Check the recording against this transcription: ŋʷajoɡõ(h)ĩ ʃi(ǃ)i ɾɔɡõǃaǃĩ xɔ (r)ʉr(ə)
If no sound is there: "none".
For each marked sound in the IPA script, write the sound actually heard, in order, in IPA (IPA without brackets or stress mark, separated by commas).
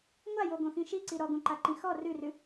x, ǀ, r, ʉ